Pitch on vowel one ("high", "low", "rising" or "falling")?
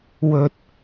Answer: low